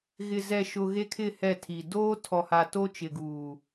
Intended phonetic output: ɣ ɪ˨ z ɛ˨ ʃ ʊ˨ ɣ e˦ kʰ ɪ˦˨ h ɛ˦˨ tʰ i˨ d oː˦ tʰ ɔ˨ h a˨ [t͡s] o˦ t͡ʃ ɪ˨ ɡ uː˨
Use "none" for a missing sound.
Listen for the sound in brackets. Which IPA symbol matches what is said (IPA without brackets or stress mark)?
t